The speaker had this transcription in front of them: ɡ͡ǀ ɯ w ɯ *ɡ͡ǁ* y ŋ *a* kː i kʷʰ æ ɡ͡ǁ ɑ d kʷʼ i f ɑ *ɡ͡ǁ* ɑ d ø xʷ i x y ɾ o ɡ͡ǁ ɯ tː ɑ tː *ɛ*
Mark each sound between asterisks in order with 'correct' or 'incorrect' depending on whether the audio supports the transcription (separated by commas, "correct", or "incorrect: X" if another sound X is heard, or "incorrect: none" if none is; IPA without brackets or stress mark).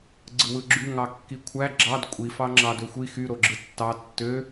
correct, incorrect: ɑ, incorrect: ŋ͡ǁ, incorrect: ø